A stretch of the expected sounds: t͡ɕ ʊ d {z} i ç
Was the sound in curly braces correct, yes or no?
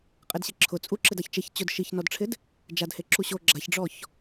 no